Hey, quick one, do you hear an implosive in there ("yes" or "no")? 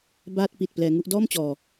no